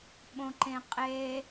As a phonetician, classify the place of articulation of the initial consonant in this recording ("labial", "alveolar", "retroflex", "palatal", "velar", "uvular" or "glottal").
labial